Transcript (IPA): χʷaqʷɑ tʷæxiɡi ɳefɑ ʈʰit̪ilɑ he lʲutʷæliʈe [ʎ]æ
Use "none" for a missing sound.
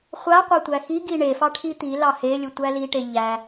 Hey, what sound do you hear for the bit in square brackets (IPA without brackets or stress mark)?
ʎ